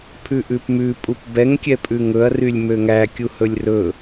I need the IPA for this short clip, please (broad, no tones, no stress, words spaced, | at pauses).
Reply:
pʰʉʔʉpmʉ pʼupbɛŋ kʲɛpʼʉŋɵɐ̯ rylʲmøŋæ kʲuhɵlʲrɵ